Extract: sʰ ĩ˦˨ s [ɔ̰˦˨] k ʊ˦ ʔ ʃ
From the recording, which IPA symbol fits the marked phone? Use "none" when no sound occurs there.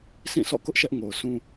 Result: ɔ̰˦˨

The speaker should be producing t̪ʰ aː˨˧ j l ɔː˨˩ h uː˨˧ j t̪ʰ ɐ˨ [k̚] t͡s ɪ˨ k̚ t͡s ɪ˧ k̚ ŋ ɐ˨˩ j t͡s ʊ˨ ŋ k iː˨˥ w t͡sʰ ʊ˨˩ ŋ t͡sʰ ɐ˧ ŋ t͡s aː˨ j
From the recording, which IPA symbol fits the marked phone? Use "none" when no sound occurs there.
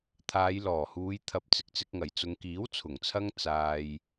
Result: p̚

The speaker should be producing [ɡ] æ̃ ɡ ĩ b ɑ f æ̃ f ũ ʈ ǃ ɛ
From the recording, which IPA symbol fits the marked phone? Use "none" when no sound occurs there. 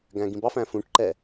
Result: ɡ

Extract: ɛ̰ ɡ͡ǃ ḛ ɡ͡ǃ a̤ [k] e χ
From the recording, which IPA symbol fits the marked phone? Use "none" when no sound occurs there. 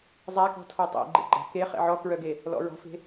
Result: k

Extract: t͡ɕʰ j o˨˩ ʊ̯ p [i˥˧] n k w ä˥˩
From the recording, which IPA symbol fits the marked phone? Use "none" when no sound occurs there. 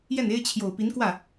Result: i˧˥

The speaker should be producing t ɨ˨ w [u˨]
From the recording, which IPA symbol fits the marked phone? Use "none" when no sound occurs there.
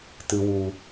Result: u˨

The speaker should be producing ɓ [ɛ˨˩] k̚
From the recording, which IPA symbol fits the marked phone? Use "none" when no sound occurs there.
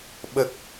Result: ə˨˩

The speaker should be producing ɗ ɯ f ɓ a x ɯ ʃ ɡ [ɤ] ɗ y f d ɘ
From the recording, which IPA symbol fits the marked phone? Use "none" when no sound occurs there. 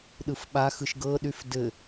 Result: ɤ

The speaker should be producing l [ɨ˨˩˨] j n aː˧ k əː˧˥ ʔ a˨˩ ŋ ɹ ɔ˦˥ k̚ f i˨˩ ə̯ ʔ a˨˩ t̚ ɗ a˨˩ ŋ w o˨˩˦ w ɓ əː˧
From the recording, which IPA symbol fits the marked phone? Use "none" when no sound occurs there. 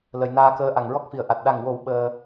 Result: ə˨˩˨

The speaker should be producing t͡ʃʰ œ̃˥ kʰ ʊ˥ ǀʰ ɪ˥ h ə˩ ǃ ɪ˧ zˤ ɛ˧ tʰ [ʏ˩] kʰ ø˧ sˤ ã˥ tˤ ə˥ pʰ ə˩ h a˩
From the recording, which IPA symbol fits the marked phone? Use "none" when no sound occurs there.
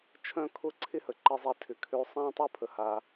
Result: ʏ˩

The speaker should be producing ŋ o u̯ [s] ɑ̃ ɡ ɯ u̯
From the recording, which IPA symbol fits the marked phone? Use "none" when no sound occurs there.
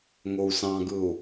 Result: s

